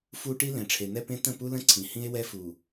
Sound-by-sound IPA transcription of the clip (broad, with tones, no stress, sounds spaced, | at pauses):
f u˦ ʈ i˦ l ɛ̃˨ ʈ͡ʂʰ e˨ n̪ ɛ˦ p ẽ˦ t ə̃˦˨ p u˦ l ə̃˦ ǀʰ ĩ˨ h ĩ˦ e̯ w ɛ˦ f u˨